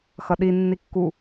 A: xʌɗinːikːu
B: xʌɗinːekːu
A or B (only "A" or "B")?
A